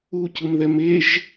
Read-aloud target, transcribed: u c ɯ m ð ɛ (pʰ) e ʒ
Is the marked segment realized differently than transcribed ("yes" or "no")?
yes